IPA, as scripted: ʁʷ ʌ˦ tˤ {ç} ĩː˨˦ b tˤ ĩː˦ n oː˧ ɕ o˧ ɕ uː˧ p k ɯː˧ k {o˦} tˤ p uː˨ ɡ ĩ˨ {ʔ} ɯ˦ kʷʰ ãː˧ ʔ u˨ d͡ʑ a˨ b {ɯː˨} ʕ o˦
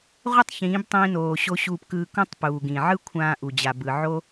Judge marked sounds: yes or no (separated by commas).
yes, no, no, no